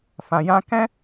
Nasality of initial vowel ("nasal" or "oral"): nasal